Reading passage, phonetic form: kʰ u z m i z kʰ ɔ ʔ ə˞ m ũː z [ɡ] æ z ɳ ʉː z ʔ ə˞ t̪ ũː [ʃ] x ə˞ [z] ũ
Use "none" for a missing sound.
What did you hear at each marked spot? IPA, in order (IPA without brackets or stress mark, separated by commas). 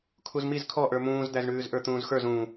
d̪, z, z